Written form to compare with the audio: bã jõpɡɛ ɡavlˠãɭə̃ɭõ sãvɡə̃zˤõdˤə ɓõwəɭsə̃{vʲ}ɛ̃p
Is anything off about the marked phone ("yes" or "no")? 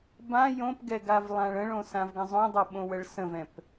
yes